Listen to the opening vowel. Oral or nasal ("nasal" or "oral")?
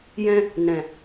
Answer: nasal